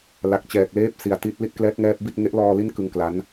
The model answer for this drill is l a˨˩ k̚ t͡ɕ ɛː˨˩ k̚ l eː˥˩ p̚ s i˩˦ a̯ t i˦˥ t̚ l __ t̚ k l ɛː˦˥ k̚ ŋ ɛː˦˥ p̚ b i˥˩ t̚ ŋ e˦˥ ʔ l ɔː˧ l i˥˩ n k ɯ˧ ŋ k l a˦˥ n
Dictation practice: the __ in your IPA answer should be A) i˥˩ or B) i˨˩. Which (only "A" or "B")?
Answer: A